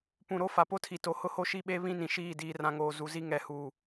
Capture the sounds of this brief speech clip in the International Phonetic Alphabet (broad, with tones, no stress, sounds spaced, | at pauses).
p ũ˨ ɾ o˦ f a˨ p o˦ tʰ i˨ t o˨˦ h ʊ˦ h o˦ ʃ i˦ ɓ e˦ β ĩ˦ n ĩ˨ ʃ iː˦˨ d iː˦ r ã˦ ŋ oː˦ z u˨˦ z i˦ ŋ ɛ˦ h uː˦˨